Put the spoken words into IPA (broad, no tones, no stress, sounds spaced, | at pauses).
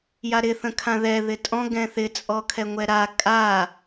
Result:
j a ɾ ɪ θ ə̃ kʰ ã ð ɛ ð ɪ tʼ ɔ̃ ɡ ɛ̃ θ ɪ t͡sʼ ɔ kʰ ɛ ŋʷ ɛ ɾ a kʼ a